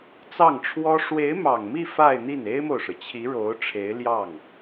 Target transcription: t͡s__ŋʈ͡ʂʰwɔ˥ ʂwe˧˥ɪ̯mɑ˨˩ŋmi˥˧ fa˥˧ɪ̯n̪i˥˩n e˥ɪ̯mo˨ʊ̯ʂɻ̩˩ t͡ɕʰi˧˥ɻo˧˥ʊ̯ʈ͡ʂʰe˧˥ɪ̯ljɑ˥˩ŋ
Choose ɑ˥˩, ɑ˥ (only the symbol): ɑ˥˩